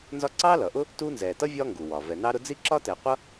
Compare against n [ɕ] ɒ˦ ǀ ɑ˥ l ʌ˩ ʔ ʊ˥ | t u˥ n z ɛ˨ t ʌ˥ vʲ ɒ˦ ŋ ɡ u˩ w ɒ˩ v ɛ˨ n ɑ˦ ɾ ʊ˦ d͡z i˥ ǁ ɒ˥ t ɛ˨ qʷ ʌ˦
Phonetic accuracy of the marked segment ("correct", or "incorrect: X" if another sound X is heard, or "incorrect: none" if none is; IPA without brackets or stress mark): incorrect: z